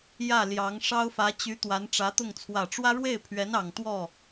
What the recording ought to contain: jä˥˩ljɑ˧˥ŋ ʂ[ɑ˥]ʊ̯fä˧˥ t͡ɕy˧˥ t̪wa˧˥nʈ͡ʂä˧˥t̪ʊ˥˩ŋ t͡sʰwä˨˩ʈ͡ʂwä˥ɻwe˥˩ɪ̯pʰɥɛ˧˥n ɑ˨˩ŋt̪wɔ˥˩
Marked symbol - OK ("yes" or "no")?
yes